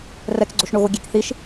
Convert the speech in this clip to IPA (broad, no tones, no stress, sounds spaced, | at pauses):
r ɛ k ɡ͡ǀ o ʃ ɳ o ɣ o ɡʲ e k θ i ʃ